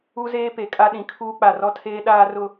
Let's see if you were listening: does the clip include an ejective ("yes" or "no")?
yes